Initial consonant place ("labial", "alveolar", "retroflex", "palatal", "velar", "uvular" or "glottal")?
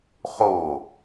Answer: uvular